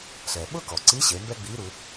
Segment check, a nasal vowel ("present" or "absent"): absent